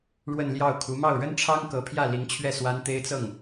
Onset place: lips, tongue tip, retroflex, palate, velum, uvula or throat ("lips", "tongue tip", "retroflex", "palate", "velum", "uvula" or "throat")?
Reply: retroflex